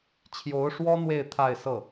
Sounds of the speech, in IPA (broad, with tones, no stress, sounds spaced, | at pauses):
t͡ɕʰ j o˧˥ ʊ̯ ʂ w ɔ˥ n̪ w e˥˧ ɪ̯ t̪ʰ a˥˧ ɪ̯ s ɤ˥˩